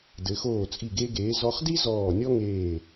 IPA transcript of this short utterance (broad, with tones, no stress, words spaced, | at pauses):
dɘ˩˧xoː˧˩t͡sʼi˧˩ ɡe˧ɡeː˩˧ zɔ˧χ di˥ zɔː˧˩nʲɔ˥ŋeː˧˩